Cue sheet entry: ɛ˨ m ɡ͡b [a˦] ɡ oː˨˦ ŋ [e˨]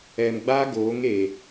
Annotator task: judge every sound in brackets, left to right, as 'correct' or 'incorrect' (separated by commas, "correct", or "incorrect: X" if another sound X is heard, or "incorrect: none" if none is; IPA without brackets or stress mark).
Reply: correct, correct